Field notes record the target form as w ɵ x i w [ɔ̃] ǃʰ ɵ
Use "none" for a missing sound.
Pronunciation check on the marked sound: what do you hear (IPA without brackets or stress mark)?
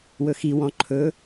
ɔ̃